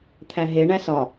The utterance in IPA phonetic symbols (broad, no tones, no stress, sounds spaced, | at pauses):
t̪ʰ æ ɦ e ɳ æ s ɒ